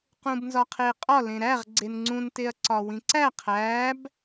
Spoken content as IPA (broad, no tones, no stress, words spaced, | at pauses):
qũbnzɒqʰeqʼɒ lẽɾæʁ ɡ͡ǀenŋ͡ǀũnteɐ̯ ǀɒwĩǀæ qʰæb